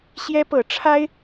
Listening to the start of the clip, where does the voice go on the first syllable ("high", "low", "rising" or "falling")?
high